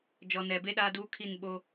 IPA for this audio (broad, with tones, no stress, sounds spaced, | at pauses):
d͡ʒ ɔ˨ n ɛ˨ b e˦ ɗ aː˦ d uː˦ kʰ i˦˨ n ɓ o˦